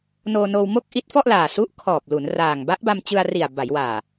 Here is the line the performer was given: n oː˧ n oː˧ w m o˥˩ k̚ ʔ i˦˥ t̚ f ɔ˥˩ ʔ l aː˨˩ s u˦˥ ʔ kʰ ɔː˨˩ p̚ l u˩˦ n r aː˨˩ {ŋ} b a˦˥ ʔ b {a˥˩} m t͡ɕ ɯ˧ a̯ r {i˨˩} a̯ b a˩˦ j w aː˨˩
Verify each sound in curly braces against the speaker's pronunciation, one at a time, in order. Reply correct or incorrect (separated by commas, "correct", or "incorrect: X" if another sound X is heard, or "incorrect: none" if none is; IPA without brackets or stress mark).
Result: correct, incorrect: a˧, correct